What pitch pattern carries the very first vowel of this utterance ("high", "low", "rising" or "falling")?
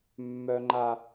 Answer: low